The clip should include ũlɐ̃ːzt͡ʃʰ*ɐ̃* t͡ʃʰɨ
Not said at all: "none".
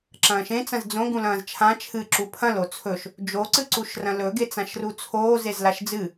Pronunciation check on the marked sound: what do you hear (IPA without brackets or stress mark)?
ã